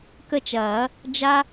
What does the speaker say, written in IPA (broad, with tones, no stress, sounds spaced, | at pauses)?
k ə˦˨ t͡ʃ ɐː˨˩˦ | d͡ʒ a˦